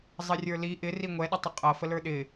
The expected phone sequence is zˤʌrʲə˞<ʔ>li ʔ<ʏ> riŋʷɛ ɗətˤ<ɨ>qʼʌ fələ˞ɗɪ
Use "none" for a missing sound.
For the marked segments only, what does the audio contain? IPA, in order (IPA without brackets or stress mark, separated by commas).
none, ɪ, ɪ